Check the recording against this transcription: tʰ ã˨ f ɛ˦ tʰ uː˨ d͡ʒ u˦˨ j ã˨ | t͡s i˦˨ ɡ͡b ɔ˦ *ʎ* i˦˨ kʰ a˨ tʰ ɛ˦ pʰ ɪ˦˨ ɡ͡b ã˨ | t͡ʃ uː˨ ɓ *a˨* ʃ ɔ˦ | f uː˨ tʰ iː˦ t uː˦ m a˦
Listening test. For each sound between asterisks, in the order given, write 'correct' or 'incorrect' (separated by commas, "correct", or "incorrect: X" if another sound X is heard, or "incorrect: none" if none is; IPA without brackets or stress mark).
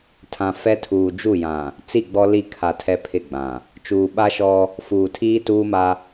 incorrect: l, incorrect: a˦